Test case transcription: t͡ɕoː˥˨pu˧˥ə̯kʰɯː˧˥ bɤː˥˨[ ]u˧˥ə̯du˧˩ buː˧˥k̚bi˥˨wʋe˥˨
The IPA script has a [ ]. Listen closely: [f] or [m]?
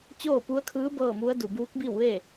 m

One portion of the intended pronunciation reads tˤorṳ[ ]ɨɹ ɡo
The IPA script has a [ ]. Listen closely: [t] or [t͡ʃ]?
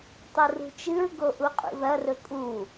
t͡ʃ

